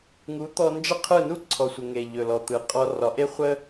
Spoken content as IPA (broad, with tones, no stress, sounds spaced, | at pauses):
ŋ u˩˥ t̪ ɔ˧ n d͡ʒ ə˥ qʰ ɯ˥˩ n u˥ ǀʰ ɔ˩ sʷ ə˩ ŋ e˩ ʎ ɵ˩ l ɔ˩ t̪ ɯ˩ qʼ ɔ˧ r ɒ˩˥ ʔ e˥ χʷ ə˥